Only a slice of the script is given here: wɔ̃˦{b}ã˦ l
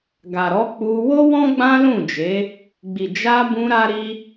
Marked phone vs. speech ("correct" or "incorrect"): incorrect